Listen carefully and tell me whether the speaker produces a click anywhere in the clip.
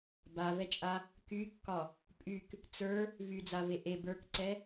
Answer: yes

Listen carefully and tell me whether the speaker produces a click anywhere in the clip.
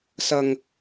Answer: no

